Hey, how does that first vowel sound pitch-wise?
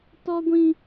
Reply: high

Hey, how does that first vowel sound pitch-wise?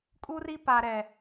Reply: high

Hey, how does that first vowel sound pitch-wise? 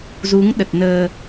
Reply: rising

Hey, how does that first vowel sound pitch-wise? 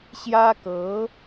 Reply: high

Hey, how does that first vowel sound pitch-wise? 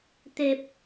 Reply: low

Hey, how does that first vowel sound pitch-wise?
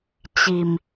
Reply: low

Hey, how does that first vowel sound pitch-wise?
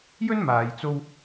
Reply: high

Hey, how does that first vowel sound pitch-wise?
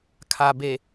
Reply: low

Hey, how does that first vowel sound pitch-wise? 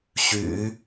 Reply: low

